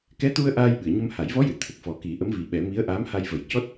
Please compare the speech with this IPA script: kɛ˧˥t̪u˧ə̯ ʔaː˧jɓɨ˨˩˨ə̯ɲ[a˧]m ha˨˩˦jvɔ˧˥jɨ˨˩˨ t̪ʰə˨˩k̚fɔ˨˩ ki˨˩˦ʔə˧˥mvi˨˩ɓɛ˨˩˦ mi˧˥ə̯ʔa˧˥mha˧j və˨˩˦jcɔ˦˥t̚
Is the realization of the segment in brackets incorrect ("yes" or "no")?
yes